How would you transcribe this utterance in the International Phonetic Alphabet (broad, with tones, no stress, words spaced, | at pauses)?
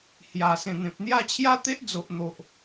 hja˨˩sẽ˨˩n̪ẽ˨p̚n̪ja˥˧ t͡ɕʰja˦t̪e˦ʔd͡zo˨ʔn̪o˨ʔ